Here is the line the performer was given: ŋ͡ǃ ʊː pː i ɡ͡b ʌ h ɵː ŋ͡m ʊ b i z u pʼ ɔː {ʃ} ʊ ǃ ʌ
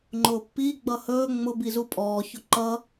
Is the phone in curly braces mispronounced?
yes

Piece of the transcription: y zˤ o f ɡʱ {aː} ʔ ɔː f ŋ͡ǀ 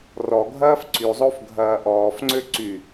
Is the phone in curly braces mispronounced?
yes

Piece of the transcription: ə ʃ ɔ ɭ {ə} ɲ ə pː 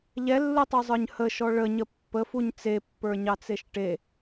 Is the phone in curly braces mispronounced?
no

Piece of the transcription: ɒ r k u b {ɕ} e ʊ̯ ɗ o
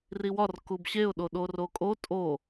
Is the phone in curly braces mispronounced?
no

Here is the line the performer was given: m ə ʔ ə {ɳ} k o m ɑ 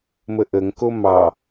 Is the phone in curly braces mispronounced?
yes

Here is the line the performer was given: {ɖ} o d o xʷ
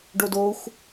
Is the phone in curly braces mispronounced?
no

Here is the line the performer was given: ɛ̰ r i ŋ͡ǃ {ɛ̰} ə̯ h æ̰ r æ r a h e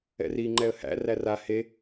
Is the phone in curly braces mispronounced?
yes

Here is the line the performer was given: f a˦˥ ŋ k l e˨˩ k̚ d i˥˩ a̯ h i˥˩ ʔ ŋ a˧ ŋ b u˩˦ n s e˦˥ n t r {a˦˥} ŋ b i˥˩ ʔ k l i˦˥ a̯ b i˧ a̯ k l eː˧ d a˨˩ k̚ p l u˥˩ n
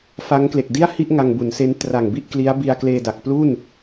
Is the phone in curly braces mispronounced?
yes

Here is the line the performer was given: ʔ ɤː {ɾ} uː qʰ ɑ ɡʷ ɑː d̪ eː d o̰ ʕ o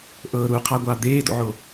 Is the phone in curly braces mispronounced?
no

